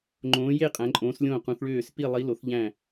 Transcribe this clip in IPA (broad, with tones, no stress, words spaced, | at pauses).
ŋ͡ǃõː˨˦je˦˨ qʼæ̃˨˦ǃʼõː˨˦s lʲõː˦˨qũ˨˦θɭøː˦˨s pi˦˨lˠi˨˦lo˨˦θʎæ̃˦˨